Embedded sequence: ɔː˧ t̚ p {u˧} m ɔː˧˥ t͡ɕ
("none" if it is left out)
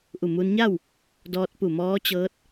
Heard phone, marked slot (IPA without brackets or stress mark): u˧˩